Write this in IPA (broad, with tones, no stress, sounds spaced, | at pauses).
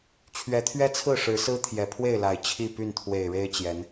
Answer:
t͡ɕʰ ɥ ɛ˨˦ t̪ʰ ɥ ɛ˦ t͡sʰ ɹ̩˥˨ ʂ ɻ̩˨˦ s ɹ̩˦ t̪ʰ j ɛ˨˩ pʰ w e˥˨ ɪ̯ l a˨˩ ɪ̯ t͡ɕʰ i˥˨ p y˥˨ n t̪ʰ w e˨˩ ɪ̯ ɻ e˦ ɪ̯ t͡ɕ j ɛ˨˦ n